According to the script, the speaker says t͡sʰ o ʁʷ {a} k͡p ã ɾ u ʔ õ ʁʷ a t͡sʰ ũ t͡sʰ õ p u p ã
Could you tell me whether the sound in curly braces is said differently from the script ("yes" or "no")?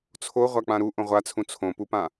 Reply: no